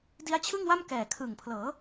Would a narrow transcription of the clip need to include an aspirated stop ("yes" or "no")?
yes